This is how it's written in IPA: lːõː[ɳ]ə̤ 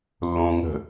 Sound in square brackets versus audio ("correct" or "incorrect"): incorrect